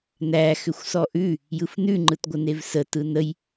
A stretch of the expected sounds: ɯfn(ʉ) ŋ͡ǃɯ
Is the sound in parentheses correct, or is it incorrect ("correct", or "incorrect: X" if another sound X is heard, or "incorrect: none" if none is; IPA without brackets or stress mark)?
correct